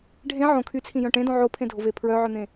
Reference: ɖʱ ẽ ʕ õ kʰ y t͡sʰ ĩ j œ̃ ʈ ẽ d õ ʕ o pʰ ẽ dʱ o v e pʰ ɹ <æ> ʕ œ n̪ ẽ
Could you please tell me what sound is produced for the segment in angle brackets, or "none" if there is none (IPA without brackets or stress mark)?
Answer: œ